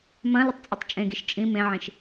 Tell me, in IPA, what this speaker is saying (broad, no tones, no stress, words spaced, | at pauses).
mɐ̃ lətˤt͡sʼʊtˤt͡ʃʼẽɡiʃ t͡ʃʼĩ mẽʕĩʃ